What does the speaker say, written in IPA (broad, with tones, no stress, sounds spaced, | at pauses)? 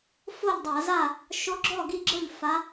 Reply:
f o˥˨ ʎ dˤ a˧˩˧ z a˥˨ | ʃ o˧˥ ɡ͡ǁ ɔ˥˨ ɡ i˥˨ ɡ͡ǁ ɤ˥˨ ʎ f a˧˥